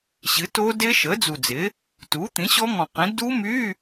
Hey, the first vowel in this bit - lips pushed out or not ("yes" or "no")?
no